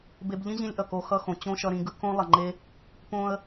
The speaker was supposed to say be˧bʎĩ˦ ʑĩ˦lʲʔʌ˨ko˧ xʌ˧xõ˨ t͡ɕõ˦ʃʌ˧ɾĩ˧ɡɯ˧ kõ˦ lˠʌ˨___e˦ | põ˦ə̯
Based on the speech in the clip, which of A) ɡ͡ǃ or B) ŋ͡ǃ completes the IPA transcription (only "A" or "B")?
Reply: B